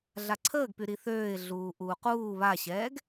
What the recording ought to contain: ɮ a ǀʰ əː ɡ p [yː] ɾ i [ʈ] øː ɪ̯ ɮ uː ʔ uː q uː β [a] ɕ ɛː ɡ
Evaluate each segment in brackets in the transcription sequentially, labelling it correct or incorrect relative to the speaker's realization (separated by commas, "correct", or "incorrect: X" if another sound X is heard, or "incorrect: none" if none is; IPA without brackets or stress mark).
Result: incorrect: y, incorrect: θ, correct